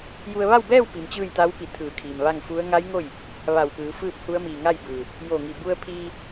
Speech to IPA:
ju˧ə̯ ʋa˥˨wbɛː˥˨w pi˩˧mt͡ɕɯː˥˨jt̪a˧˥wpi˧˩ t̪ʰɯː˧˩kʰiː˩m ʋa˥˨ŋfu˧˥ə̯ ŋa˧˥j ŋo˥˨j | ʋa˧˩wpɯː˩˧ fɯː˥˨p̚hu˧˥ə̯mi˧˩ ŋa˥˨jbɯː˩ | jo˧˩ŋi˧˩ bu˧ə̯pʰiː˧

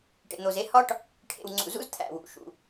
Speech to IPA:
ʈḛ˨n̪o˨ze˦ hɒ˦ʈ | ʈʰḛ˨wŋ͡ǀṵ˨zṵ˦z t̪ʰæ̰˨wṵ˨ ʃṵ˨

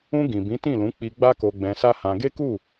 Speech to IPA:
ũ˧ ɡĩ˨bĩ˨˦tĩ˦˨lũ˨˦ k͡pi˧ɡ͡ba˦ ko˧ɡ͡bɛ̃˧sa˦hã˧ ɡe˦ku˦˨

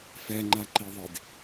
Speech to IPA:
fɛŋ͡ǃaǃiðˤid

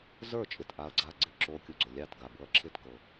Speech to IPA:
zə˞˥˨t͡ʃʼɪ˨t ʔa˦˥ɐ̯ɡ͡ǀa˥˨ ɡ͡ǀɪ˥˨ ǁo˦˥ kʲu˨ɡ͡ǀo˨lʲɑ˥˨tɡa˨ bɤ˦˥ɐ̯ǁʰɪ˥˨tkɤ˨

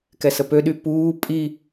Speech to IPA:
kɛsəpøɗy puː pʼi

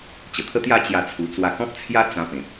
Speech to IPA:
t͡ɕə˨˩t̪ʰə˦t̪ja˥˧ t͡ɕja˦t͡sʰu˧ t͡swa˧kɔ̃˦p̚t͡sʰja˦ t͡sã˧pẽ˨p̚

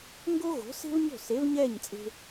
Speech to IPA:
ŋɡo˥ɣo̤˩˥se̤˥vɲo̤˥˩ se˩˥vɲɛ˥˩ɲ t͡sʼe̤˧

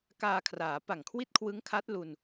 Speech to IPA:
kaː˧kʰraː˩˦pa˨˩ŋ kʰwi˥˩t̚kʰwɯ˦˥ŋkʰa˦˥t̚ lu˧n

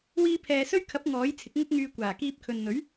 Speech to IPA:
wiː˧pʰɛː˨sɵ˥ɥkʰɐ˨˥p̚ ŋɔː˨˥jt͡sʰɪ˨˥k̚ŋʊ˥k̚ŋyː˧ kʷaː˨˩kiː˧p̚kʰɵ˨nn̪ɵ˨˥ɥ

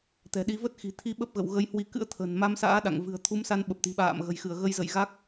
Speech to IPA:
t̪ɛ̤˨˩ɗi˧ və˦˥t̚xi̤˨˩t̪ʰi˧ ɓə˦˥p̚ɣə̰˧˨w ɣə˨˦jhwi˨˦kɨ̰˧˥ə̯ t̪ʰə̤˨˩n ma˧msa̰ː˧˥ ɗa̰˧˨ŋvɨ̤˨˩ə̯ t̪ʰu˨˦msa˧n ɓə˨˩p̚t̪i̤˨˩ ɓa̰ː˧˨mɣə̤˨˩jxɨ˧˩ə̯ ɣə˧jzə̰˧˨jɣa˦˥k̚

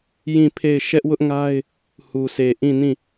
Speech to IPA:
jĩ˦˨pʰe˦˨ɪ̯ ʃɛ˦ʔwʊ˦ʔŋa˦ɪ̯ | hu˨se˨ ʔĩ˦˨nĩ˦˨

